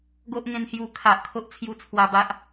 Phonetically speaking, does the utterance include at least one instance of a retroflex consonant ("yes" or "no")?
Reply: no